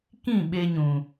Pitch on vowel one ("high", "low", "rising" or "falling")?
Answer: falling